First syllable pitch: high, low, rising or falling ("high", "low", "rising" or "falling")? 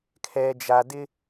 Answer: low